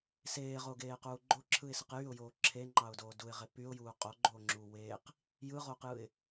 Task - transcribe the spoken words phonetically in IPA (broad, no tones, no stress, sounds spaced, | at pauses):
s eː ʁ o ɡ eː q uː ɡ͡ǃ o ǁʰ ɯ ɪ̯ s ɯ q j y ʊ̯ j oː ǁʰ e ŋ͡ǃ ɑ ʊ̯ d oː d u ɪ̯ ʁ e p y ʊ̯ j uː qʼ o ɡ͡ǃ oː ŋ͡ǁ uː w eː q | j ɯ ʁ oː q j ɯ ɪ̯